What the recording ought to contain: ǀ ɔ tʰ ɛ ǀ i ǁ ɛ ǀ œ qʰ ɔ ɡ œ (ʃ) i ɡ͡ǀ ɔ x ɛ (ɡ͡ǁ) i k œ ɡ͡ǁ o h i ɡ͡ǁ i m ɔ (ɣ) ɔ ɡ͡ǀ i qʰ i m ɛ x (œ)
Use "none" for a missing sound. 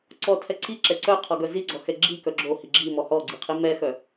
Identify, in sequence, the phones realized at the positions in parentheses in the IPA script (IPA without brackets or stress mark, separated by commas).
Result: z, ɡ͡ǁ, h, œ